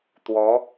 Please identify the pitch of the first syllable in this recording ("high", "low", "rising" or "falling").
rising